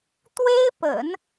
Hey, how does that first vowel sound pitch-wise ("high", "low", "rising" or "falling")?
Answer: high